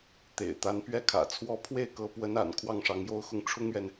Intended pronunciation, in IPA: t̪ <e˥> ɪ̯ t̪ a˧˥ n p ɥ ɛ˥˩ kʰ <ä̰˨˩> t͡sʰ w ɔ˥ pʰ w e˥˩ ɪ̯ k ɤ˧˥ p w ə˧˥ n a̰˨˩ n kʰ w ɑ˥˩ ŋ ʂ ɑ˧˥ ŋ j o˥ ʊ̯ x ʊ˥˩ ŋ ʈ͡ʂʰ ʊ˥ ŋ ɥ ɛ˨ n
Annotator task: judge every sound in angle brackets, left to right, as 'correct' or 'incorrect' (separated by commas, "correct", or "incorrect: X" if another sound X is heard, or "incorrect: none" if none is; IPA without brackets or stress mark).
incorrect: ḛ˨˩, correct